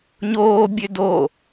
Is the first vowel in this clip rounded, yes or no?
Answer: yes